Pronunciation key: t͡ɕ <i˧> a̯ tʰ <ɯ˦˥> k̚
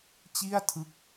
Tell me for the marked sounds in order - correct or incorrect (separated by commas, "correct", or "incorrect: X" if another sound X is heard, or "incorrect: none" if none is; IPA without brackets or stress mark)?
incorrect: i˥˩, correct